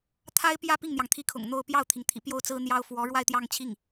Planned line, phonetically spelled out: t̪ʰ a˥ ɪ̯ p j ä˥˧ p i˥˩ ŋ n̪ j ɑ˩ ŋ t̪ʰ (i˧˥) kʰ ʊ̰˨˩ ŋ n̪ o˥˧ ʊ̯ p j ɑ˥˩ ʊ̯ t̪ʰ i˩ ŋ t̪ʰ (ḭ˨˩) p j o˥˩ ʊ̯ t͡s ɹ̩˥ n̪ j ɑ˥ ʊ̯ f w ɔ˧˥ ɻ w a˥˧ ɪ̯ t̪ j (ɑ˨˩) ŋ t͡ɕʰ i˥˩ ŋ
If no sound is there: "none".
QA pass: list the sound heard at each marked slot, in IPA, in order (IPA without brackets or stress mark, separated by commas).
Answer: i˧˥, ḭ˨˩, ɑ˥˧